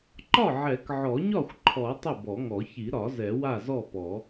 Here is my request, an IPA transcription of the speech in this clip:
ǃ ɒ˥˩ ʕ ɛ˨˩˦ k ʕ ɔ˨˩˦ ɲ ɒ˥˩ xʷ ǃʰ ɔ˨˩˦ tˤ ə˥˩ b ɔ˨˩˦ ŋ ɔ˨˩˦ ç i˨˩˦ ɾ ɒ˨˩˦ z ɛ˨˩˦ w a˥˩ z ɔ˥˩ p ɔ˨˩˦

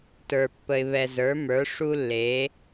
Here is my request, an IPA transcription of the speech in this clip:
t ə˞˩ pː ə˩ ɪ̯ β ɛ˩ z ə˞˩˧ m ə˞˩˧ ʂ u˧ lː e˩˧

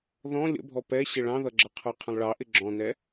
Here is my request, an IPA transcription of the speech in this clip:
ð ɔ̃ lʲ ə̰ bʱ ɔ p ɛ ɕ ɪ ɭ ɑ̃ ð ʌ ɡ͡ǁ ʌ qʰ ə˞ qʰ ə̃ lˠ ɭ ɑ ʔ ɪ ɡ͡ǁ ɔ̃ n ɛ

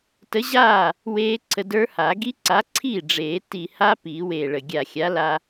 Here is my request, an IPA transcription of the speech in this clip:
t ə˨˥ ʑ aː˥˩ | w eː˦˥ ǀʰ ə˧ d ə˞˦˥ h a˨˩˦ ɡ i˦˥ ǀ a˨˥ ǀʰ iː˥˩ ɖ͡ʐ eː˨˩˦ t i˨˩ h a˦˥ p iː˨˩˦ w eː˨˩ ɭ ə˨˩ ɡʲ a˨˩ xʲ a˨˥ l a˧

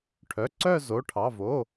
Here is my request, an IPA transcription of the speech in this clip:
ʈʰ œ˩˧˩ ǀ œ˦˨ z o˩˧˩ ʈʰ ɑ˩˧˩ v o˩˧˩

